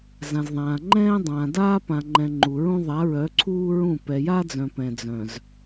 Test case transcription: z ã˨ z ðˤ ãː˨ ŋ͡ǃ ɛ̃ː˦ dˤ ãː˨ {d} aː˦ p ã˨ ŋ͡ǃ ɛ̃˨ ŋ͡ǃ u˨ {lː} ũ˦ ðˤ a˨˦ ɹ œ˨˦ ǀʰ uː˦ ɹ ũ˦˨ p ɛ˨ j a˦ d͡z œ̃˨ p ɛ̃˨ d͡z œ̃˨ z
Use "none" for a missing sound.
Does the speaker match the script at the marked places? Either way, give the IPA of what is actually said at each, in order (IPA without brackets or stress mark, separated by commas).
d, ɹ